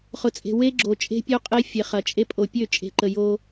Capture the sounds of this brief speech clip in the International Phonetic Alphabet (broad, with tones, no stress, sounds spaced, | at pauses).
χ ʊ˨ t͡sʼ e̤˨ w e˦ ɡ͡ǁ o˨ t͡ʃʼ e̤˦ pʲ o˦ qʼ e˦ fʲ e˨ χ ɐ˨ t͡ʃʼ e˦ pʼ o˨ pʲ ø˦˨ t͡ʃʼ e̤˨ ǃ ə˨ j o˦